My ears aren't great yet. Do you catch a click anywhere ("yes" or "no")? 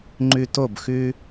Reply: yes